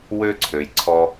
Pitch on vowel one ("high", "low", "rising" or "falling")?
high